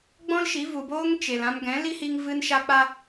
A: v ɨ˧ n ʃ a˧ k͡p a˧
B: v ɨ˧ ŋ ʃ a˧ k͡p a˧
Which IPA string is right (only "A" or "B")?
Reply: A